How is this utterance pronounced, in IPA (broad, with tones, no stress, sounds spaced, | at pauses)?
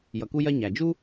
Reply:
j ʌ˩ k u˦ j ɜ˦ ɲ æ˩ d͡ʒ u˥